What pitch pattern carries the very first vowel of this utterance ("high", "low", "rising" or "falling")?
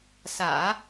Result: low